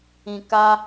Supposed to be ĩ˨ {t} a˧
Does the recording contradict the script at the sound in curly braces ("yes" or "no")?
yes